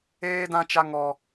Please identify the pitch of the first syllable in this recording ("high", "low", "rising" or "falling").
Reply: high